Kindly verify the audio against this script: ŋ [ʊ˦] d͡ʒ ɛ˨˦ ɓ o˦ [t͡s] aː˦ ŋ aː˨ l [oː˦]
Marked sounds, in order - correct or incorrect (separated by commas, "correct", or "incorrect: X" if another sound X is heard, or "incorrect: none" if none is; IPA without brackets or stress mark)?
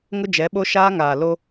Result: correct, incorrect: ʃ, incorrect: o˦